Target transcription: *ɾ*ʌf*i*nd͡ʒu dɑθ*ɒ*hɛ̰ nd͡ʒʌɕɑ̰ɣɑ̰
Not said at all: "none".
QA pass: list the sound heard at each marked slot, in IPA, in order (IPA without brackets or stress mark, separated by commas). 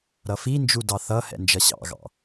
ɾ, i, ʌ